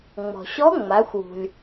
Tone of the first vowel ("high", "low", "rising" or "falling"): low